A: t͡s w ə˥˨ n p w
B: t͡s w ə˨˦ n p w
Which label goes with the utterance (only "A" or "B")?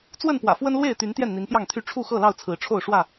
A